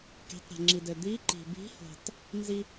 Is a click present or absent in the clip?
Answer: present